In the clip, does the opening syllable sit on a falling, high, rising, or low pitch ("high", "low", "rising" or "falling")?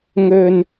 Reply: low